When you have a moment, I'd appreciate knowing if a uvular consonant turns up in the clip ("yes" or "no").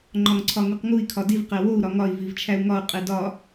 yes